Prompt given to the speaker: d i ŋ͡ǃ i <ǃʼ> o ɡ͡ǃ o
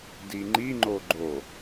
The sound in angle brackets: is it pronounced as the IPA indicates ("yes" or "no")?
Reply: no